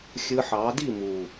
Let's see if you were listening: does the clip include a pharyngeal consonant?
yes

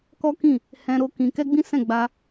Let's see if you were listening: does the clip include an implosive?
no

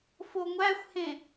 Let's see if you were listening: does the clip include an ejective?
no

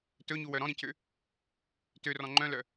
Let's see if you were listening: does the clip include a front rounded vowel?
yes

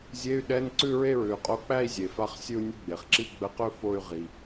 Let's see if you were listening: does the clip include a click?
yes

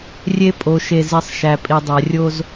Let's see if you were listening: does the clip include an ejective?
yes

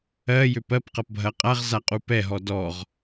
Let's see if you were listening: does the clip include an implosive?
no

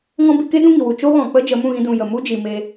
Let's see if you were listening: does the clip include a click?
no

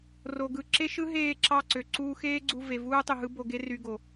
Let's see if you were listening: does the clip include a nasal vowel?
no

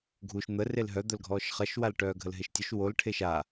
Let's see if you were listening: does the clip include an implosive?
no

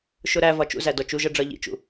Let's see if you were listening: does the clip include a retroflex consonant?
yes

